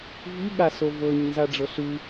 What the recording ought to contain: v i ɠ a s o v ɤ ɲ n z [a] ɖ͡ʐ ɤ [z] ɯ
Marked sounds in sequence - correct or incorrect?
correct, incorrect

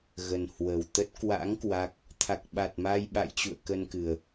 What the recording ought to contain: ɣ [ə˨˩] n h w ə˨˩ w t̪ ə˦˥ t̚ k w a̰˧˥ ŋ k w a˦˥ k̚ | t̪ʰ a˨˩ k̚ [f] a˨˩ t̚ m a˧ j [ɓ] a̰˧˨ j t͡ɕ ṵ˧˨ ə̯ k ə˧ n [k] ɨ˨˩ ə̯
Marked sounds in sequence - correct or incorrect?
correct, incorrect, correct, correct

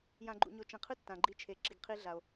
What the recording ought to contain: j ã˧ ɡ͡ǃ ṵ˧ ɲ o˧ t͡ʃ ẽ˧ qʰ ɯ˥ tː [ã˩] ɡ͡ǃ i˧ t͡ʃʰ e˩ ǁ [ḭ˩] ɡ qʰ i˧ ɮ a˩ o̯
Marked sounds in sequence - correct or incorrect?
correct, incorrect

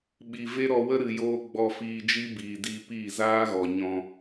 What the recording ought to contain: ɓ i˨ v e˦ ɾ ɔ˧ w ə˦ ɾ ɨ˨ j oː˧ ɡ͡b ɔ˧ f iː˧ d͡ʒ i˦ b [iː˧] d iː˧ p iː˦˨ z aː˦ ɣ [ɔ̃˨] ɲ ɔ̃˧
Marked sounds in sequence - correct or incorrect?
incorrect, incorrect

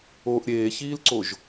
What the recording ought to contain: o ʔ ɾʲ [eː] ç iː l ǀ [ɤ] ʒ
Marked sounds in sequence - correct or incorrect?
correct, incorrect

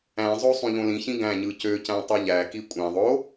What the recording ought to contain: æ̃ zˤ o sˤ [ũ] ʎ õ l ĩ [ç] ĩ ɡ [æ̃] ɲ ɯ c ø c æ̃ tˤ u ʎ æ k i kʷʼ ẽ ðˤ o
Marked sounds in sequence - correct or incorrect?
correct, correct, correct

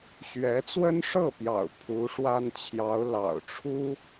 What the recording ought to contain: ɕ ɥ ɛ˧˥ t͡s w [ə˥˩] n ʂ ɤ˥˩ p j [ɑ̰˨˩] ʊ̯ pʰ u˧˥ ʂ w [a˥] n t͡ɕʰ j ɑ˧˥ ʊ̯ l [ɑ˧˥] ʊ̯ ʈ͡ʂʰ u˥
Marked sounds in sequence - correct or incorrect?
incorrect, correct, correct, incorrect

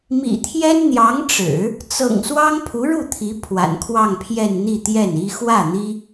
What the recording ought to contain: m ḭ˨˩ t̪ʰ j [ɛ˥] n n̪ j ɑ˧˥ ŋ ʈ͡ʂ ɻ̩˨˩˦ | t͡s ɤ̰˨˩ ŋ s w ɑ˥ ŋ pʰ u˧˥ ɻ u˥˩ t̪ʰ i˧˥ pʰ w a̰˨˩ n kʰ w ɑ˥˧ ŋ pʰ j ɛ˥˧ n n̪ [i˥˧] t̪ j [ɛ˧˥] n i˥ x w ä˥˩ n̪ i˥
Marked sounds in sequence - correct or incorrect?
correct, correct, incorrect

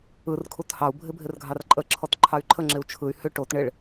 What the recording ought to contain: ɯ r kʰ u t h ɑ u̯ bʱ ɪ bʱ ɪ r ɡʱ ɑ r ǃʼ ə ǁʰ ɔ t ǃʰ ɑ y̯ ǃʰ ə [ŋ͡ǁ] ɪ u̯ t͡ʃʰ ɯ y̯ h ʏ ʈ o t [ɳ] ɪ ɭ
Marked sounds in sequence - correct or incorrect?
correct, correct

